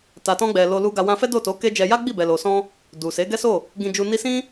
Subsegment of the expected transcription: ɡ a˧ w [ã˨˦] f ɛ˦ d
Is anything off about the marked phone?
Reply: yes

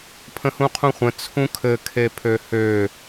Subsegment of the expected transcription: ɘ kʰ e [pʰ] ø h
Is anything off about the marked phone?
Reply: no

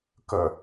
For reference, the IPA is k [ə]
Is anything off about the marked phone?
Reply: no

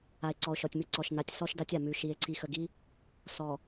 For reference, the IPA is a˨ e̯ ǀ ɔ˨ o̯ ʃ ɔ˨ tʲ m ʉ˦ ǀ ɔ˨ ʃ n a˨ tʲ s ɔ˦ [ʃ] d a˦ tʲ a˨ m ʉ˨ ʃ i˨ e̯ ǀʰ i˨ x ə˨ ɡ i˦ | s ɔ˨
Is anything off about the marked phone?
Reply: no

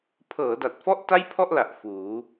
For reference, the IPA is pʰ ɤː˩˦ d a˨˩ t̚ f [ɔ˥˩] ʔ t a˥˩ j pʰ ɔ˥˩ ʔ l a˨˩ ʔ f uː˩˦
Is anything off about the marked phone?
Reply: yes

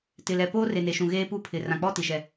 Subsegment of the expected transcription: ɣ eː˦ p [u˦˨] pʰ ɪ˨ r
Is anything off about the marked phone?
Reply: no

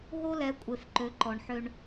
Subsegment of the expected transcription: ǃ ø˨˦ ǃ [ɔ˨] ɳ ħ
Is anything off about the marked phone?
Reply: no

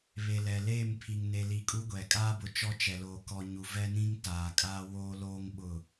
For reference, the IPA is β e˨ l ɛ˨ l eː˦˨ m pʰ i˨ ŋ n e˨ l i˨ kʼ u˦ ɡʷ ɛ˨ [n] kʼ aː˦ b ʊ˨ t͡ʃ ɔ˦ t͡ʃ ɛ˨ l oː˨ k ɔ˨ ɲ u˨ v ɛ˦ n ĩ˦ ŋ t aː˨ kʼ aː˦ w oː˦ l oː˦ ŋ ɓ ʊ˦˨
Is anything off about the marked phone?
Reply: yes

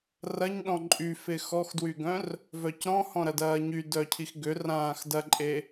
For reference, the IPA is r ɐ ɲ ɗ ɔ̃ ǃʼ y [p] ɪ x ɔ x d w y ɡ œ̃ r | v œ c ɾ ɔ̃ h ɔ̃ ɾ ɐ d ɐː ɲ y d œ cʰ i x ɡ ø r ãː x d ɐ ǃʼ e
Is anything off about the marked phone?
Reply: yes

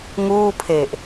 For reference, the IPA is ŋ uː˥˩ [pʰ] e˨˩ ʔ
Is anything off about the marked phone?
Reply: no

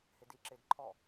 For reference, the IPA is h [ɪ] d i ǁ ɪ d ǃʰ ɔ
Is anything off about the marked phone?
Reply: no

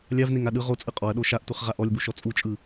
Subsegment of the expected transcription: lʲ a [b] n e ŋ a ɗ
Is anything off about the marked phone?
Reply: yes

